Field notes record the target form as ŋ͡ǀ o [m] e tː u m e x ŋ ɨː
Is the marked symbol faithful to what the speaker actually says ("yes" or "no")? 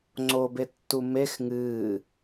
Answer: no